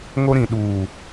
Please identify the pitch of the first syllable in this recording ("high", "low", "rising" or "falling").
high